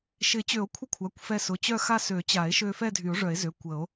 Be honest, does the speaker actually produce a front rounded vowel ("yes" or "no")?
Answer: yes